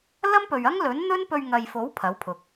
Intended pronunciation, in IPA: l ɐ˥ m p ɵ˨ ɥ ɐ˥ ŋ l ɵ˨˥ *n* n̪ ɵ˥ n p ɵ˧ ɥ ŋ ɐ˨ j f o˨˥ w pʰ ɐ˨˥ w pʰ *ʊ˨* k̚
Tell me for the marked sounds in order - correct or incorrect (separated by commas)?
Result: correct, correct